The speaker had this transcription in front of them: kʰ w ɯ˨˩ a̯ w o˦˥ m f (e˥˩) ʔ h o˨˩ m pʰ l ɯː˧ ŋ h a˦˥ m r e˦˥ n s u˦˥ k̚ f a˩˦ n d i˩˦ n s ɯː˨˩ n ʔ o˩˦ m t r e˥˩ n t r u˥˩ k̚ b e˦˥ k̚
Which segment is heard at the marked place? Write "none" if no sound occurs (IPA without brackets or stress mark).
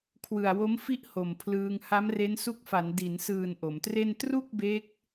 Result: i˥˩